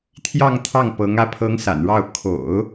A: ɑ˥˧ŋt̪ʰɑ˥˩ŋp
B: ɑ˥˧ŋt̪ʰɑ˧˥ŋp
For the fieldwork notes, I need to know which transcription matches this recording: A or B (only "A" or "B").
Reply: A